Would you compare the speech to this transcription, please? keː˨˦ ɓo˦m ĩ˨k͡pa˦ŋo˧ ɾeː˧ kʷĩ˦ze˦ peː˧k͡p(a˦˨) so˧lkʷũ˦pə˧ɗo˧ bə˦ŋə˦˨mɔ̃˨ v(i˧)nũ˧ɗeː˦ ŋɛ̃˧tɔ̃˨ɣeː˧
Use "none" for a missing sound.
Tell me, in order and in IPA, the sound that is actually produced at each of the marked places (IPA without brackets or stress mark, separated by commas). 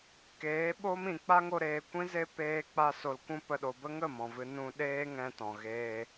a˧, ɨ˧